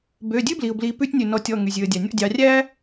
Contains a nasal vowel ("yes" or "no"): no